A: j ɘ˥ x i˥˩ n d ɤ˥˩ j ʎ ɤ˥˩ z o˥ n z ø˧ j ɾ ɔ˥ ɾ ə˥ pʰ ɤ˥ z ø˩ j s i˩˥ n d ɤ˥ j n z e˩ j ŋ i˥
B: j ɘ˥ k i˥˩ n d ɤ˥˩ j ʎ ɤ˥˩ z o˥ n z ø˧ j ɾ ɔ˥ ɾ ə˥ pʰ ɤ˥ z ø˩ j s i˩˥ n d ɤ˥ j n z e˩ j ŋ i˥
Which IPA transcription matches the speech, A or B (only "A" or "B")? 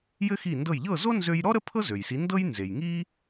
A